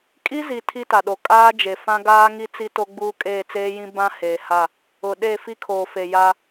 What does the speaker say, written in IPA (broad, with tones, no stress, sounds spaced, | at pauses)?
kʼ i˦ z i˨ tʰ i˦ t a˨ ɗ o˨ kʼ aː˦ d͡ʒ e˨ f ã˦ ɡ aː˦ ŋ i˦ t͡s i˦ t o˦ ɡ͡b uː˦ kʼ eː˦˨ t͡s eː˦ j ĩ˦ b ã˦ h eː˨ h a˦˨ | ʊ˨ ɗ e˦˨ f i˦ kʰ oː˨ f e˨ j a˦